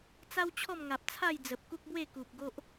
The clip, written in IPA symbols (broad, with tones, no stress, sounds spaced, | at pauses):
t͡s a˦ w t͡ɕʰ ɔ˥˧ m ŋ a˨ p̚ t͡sʰ a˥˧ j d͡z ə˨ p̚ k u˦ k̚ b w e˥˧ k u˨ p̚ ɡ o˦ ʔ